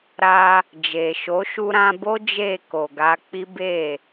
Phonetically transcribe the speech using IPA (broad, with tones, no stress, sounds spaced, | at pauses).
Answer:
ɾ a˧ | d͡ʒ e˨ ʃ o˨˦ ʃ u˧ ɾ ã˧ b o˦ d͡ʒ e˦˨ k o˨ ɡ a˧ k͡p i˦ b e˦˨